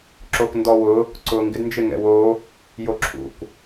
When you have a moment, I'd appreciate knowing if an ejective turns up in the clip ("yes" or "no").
no